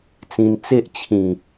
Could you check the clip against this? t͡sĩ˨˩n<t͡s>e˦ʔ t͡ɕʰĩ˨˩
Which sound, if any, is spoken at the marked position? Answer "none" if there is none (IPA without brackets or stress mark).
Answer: t͡s